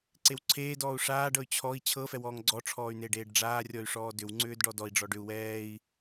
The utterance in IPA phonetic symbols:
ǀ e w ǀʰ eː d ɔː u̯ ʂ aː ɖ ɤ y̯ t͡ɕʰ ɔ i̯ t͡ɕʰ ɤ f ɛ w ɔː ŋ ɡ͡ǀ ɔ ʈ͡ʂʰ ɔː y̯ n̪ e ɖ eː ɖ ɖ͡ʐ aː rʲ ɔ y̯ ʂ ɔː d ʏ w ŋ͡ǀ ʏː d ɖ ɔ d ɔ i̯ ɖ͡ʐ ɔ ɖ ʏ u̯ w ɛː i̯

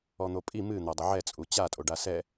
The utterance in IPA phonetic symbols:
ɔ n̪ o pʼ i m ɨ n̪ a dˤ ɐ ʕ ɛ t͡sʼ u t͡ɕ a tʼ o ɖ a s ɛ

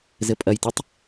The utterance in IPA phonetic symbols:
z ɘ pʼ ɐ j t ɘ tˤ

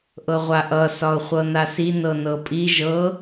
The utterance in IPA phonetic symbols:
ʔ ɤ ʁʷ a ʔ ʌ s ɒ ʊ̯ χʷ ɤ n a s i n ɤ n ɤ pʼ i ʒ ɤ

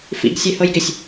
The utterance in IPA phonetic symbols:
f ḭ ɡ sʲ ɛ h ɤ j ɡ ɪ sʲ

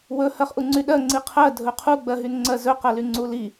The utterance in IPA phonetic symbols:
w ɵ h ɜ χ ʔ u ŋ͡ǀ y ɗ ɜ ŋ͡ǀ i qʰ ɜ dʱ ɵ qʰ u ɡ͡b ɜ ɦ y n ŋ͡ǀ ɜ z ɵ q ɜ l y ŋ͡ǀ u l i

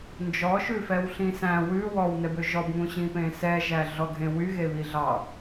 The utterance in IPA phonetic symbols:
n d͡ʒ ɔ ʃ ʉ f ɛ w ɬ ĩ s æ̃ w ʉ w ɔ w n ɛ b ø ʒ ɔ b ŋ ũ ɕ ĩ p ẽ s ɛ ʒ æ ɮ ɔ ɡʱ ẽ w y ɣ e β i ɮ ɑ

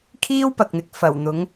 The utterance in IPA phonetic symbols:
kʰ iː˥ w p ɐ˨ k̚ n̪ ɪ˨ k̚ f ɐ˨˩ w n̪ ʊ˨˥ ŋ

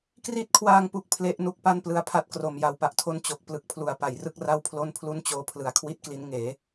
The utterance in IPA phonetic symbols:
k r i˦˥ t̚ kʰ w aː˧ ŋ p u˨˩ k̚ pʰ l e˦˥ ʔ n u˥˩ k̚ p a˥˩ n p l ɯ˧ a̯ pʰ a˦˥ t̚ k r o˨˩ m j a˨˩ w p a˨˩ ʔ tʰ o˦˥ n t͡ɕ o˨˩ k̚ p l ɯ˨˩ k̚ pʰ l u˩˦ a̯ p a˩˦ j r ɯ˥˩ k̚ r a˥˩ w pʰ l o˥˩ n pʰ l u˥˩ n t͡ɕ oː˦˥ pʰ l ɯ˩˦ a̯ kʰ w i˥˩ t̚ k l i˦˥ n ŋ eː˩˦

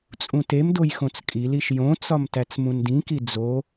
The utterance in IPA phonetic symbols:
t͡sʼ ũ t e m d o j x õ t͡s kʼ i l i ʃ j õ t͡s ɒ m t æ t͡s m ũ n d ĩ k i d͡z o

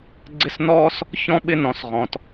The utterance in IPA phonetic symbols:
ɡ͡ǀ ɪ˦ s n ɔː˥ s | ç ɔ̃˥ ɓ ɪ˦ n ɔ̃˨ s ʁ ɔ̃˨ t

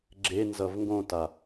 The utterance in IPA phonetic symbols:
ɡ͡ǁ e n z ʌ v ŋ ɡ õ t a

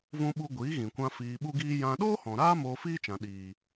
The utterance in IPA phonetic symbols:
v ũ˧ ɓ u˧ ɡʷ iː˨˦ ɣ ĩ˨ kʷ ã˧ f iː˨ ɓ u˧ ɡ iː˧ j ã˧ ɗ oː˦ h ɔ̃˨ ɾ aː˦ m oː˧ f iː˦ t͡ʃ ã˨ ɗ iː˨

